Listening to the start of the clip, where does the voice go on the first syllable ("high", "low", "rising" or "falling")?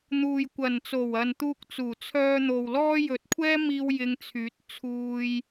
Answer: low